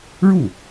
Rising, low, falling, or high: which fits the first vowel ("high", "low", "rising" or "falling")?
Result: falling